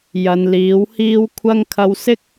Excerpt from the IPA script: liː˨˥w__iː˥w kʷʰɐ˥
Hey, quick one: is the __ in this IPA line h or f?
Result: h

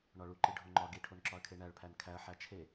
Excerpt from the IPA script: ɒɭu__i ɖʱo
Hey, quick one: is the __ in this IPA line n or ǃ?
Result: ǃ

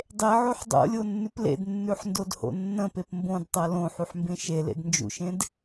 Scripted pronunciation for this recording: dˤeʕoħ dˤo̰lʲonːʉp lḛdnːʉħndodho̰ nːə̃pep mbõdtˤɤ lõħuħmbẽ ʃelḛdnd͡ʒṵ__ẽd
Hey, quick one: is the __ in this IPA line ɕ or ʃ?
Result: ʃ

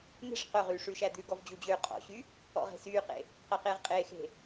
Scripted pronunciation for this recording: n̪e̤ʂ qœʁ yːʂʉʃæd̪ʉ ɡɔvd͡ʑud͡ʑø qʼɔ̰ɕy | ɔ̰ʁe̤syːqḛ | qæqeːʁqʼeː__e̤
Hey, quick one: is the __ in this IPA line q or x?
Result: x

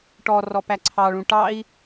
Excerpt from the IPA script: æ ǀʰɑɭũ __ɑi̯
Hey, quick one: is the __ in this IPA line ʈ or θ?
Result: ʈ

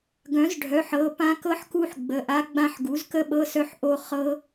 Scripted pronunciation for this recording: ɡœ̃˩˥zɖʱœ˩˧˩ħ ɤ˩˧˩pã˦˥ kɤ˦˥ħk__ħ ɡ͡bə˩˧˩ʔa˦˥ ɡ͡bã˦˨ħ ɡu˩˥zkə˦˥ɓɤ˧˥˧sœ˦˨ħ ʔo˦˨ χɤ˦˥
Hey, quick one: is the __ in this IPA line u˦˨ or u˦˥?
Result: u˦˥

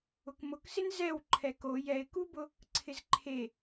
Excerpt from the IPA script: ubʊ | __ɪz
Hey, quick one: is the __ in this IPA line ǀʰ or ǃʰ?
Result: ǀʰ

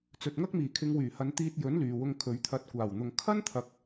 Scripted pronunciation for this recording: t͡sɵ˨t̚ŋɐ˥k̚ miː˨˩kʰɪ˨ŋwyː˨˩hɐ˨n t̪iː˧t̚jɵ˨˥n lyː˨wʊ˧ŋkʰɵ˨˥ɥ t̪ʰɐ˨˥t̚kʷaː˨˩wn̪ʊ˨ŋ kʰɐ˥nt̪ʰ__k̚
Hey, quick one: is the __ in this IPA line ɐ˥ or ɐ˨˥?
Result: ɐ˨˥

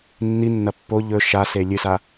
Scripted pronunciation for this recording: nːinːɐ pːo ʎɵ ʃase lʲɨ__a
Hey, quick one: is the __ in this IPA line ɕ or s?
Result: s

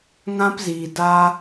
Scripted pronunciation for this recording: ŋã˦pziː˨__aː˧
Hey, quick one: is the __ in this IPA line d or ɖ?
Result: d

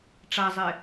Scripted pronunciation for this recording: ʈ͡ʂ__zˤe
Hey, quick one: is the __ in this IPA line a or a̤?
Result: a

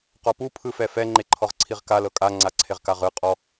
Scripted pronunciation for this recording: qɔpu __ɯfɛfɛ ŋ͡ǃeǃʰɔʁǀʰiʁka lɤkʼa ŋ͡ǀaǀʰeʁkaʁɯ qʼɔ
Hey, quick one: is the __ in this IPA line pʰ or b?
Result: pʰ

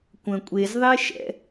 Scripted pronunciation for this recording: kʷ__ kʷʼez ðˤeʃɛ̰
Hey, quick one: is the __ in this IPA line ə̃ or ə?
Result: ə̃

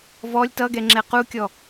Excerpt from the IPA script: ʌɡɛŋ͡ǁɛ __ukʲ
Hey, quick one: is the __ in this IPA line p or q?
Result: q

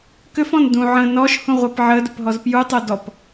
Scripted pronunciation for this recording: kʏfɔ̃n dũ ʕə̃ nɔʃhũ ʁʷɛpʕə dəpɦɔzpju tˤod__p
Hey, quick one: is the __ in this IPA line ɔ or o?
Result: ɔ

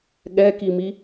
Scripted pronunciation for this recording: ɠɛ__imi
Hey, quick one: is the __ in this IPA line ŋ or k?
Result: k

